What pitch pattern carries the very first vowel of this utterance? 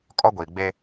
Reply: high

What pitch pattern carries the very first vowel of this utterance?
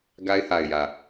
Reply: high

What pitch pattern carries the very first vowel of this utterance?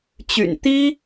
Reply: low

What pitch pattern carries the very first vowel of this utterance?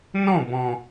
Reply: falling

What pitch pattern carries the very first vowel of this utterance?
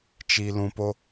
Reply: low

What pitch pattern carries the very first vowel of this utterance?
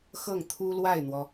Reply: falling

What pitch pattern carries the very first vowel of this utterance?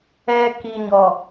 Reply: low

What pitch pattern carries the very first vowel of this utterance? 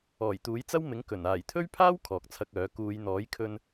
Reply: low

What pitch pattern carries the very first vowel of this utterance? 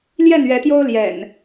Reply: falling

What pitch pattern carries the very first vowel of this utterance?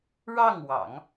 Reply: falling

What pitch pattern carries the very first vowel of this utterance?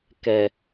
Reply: low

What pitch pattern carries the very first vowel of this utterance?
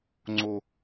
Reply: low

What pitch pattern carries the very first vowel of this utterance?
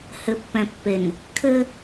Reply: low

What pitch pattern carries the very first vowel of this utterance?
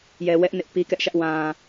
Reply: low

